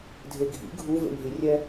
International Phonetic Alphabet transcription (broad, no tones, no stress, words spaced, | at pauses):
dʱeɡʱḭ ɡʱu vḛnʲɦirʲɛ